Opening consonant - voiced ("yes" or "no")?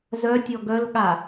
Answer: yes